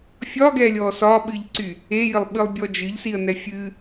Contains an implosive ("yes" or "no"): yes